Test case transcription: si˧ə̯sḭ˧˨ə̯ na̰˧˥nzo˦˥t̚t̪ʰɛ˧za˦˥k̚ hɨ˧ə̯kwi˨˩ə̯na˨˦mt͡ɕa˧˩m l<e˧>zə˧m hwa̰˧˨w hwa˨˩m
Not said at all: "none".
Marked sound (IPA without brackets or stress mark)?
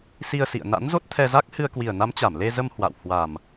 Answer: e˧